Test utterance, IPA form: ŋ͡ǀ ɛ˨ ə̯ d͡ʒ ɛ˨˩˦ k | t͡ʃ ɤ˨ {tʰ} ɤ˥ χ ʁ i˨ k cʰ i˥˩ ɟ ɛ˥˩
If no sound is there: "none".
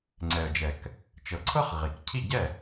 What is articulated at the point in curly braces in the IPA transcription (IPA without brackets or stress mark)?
ǀʰ